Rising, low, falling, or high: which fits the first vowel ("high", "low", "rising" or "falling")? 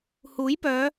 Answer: rising